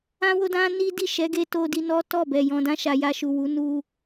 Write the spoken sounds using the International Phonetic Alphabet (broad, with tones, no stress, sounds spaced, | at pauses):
ã˦ w o˦ d ã˦ n i˦ d i˦˨ ʃ ɛ˨˦ ɡ e˧ t o˧ d i˧ n ɔ˦ t ɔ˦˨ b ɛ˨ j ɔ̃˨ d ã˧ ʃ a˨ j a˧ ʃ u˨ w u˨˦ n u˧